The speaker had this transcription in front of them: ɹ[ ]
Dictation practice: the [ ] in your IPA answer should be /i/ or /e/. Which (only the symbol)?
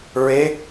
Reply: e